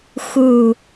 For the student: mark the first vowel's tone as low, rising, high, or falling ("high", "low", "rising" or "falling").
low